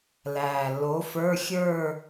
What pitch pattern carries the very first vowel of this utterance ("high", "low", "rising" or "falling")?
low